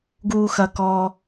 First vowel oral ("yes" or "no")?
yes